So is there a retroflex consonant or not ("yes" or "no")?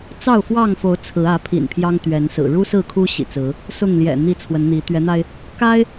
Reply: yes